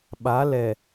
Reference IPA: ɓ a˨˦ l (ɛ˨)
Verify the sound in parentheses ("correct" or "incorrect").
correct